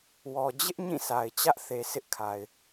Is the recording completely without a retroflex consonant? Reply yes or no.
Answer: yes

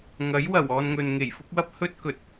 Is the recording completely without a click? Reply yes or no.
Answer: yes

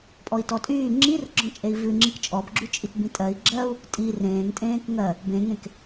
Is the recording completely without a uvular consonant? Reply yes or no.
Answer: yes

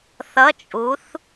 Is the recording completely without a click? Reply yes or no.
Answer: yes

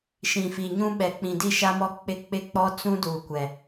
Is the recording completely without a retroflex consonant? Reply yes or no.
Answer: yes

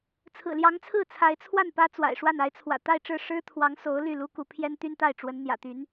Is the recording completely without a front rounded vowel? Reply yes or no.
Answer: no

